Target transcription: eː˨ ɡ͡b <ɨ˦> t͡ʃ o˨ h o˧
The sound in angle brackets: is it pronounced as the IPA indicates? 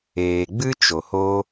yes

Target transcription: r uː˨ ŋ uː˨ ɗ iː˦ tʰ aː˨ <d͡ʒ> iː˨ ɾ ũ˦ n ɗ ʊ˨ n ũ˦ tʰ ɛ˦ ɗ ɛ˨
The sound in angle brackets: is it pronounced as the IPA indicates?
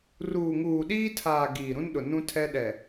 no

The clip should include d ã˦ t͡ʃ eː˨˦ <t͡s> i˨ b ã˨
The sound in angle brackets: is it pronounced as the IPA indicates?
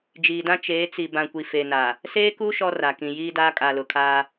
yes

